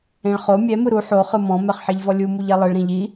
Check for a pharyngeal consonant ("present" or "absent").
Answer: present